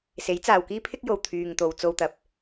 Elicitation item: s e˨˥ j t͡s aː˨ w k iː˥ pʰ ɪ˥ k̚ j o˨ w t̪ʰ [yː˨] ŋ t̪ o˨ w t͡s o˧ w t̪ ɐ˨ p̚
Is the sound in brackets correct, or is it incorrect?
correct